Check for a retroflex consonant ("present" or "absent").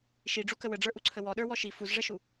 present